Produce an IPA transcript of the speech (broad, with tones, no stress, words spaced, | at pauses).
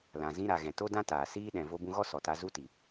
lã˨ zĩ˧ɾa˨ɣɛ̃˨ to˦dã˦taː˨ siː˦ ɗɛ̃˨ vo˧bũ˧ɣɔ˦ sɔ˨ta˧ zu˦ti˨